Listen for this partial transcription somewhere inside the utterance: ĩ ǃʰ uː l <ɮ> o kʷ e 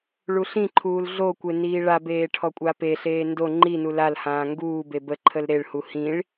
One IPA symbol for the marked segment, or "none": ɮ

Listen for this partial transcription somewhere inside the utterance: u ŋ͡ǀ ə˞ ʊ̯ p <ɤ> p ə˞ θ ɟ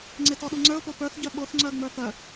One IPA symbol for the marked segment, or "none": o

